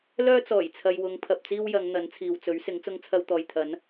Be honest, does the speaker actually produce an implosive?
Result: no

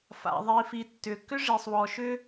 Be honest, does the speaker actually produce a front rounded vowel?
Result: yes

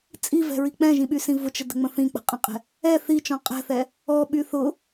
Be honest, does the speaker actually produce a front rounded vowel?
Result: yes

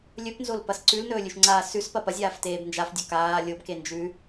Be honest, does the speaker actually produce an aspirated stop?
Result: no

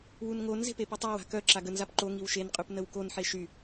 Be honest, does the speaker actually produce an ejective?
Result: yes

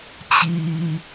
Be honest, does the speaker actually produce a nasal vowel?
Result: no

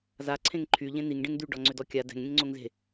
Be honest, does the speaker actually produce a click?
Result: yes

